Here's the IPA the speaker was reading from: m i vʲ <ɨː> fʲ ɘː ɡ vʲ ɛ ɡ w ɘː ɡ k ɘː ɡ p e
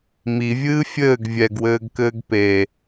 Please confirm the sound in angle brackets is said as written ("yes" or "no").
yes